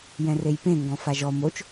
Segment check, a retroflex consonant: absent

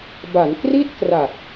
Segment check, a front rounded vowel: absent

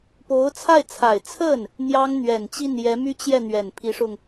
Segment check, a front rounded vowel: present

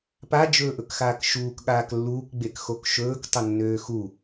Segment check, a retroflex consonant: absent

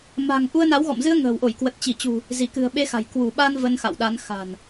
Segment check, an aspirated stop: absent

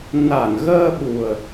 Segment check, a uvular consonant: absent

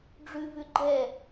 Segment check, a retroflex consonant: present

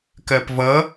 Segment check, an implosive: absent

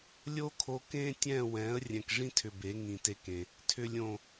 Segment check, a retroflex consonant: present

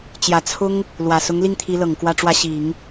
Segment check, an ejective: absent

